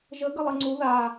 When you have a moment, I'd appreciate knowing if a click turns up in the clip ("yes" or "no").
yes